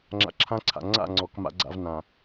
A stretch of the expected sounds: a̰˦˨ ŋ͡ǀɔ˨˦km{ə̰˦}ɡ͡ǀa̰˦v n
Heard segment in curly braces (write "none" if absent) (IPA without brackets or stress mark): a̰˦